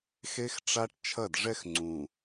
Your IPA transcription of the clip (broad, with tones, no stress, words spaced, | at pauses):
xe˦xʈ͡ʂa˦ʈ t͡ʃʰɐ˦˨dʐɛ˦xŋ͡ǀũ˨